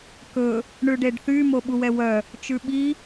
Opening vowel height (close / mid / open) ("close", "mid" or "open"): mid